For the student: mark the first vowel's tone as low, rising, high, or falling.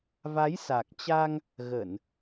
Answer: rising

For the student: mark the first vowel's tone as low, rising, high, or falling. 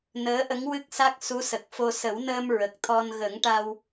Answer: rising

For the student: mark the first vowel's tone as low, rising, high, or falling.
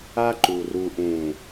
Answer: high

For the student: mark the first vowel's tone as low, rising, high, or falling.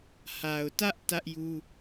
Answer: low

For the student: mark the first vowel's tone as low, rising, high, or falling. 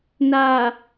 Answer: low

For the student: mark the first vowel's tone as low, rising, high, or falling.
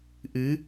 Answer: rising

